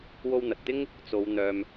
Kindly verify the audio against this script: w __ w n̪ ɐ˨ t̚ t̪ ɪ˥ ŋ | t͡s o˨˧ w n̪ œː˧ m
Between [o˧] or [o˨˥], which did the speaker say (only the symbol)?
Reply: o˧